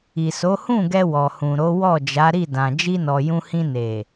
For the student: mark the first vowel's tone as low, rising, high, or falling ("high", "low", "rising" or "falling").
low